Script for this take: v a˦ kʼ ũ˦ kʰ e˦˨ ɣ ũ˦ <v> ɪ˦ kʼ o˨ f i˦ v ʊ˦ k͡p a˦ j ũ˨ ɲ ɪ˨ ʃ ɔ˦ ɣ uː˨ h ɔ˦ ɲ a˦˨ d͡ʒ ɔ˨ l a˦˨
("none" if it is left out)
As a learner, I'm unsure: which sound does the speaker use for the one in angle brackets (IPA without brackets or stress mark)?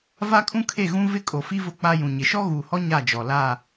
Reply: v